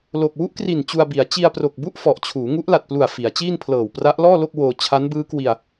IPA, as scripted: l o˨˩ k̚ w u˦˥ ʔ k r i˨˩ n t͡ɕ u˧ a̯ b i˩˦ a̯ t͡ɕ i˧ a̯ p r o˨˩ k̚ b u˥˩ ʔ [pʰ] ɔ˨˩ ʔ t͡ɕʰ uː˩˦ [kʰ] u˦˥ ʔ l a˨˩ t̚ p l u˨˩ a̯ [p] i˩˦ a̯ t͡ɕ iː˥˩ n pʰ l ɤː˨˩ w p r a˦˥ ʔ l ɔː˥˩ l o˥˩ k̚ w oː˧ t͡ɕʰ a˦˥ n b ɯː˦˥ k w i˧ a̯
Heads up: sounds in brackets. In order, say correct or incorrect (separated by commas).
incorrect, incorrect, incorrect